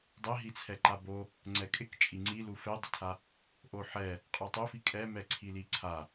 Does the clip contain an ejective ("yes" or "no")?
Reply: yes